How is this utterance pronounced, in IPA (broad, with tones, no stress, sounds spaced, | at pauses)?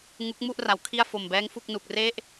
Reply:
ŋ u˦˥ k̚ m u˥˩ ʔ r a˩˦ w kʰ i˥˩ a̯ f o˨˩ m b ɛː˦˥ ŋ f u˥˩ k̚ n u˨˩ k̚ r e˥˩ ʔ